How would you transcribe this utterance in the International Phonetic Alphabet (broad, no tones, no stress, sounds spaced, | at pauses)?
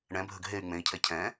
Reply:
ɳ ɛ̃ bʱ ə ɡ ɦ e y̯ ŋ͡m ẽ i̯ cʰ ɛ cʰ ɛ̃